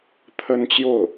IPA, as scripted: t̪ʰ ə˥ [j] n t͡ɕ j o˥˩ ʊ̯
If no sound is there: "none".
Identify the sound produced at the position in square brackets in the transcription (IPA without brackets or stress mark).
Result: none